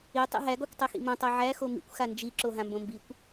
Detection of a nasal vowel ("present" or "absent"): present